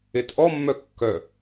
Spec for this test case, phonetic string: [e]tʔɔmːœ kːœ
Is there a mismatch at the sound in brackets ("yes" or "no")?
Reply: no